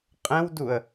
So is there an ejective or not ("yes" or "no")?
yes